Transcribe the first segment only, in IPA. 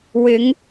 w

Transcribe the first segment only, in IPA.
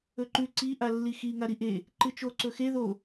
ɵ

